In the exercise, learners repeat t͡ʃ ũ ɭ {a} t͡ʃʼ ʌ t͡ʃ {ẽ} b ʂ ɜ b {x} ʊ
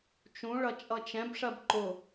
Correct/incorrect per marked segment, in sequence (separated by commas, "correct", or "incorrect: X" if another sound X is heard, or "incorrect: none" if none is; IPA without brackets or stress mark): incorrect: ʌ, incorrect: ɛ̃, incorrect: ǃ